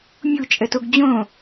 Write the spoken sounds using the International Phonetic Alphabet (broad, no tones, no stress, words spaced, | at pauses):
mʲut͡ʃʼətoɡ d͡ʑõ